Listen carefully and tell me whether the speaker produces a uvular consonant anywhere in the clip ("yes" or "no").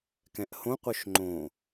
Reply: yes